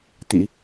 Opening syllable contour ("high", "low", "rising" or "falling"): low